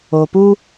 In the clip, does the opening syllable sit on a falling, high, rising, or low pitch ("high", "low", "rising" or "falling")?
low